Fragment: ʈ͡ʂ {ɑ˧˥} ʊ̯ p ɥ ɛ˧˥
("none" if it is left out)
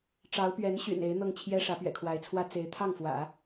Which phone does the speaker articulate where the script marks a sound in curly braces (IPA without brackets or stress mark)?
ɑ˧˥